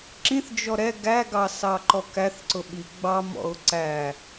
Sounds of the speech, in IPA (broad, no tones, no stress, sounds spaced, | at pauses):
ǁ ĩ θ d͡ʒ ɔ ɾ ɛ ɡ æ ɡ ɑ s ɑ ǃ ɔ k æ θ ǀ ʊ ɓ i ɡ͡b ɑ m ɔ̰ ʊ̯ ǀ æ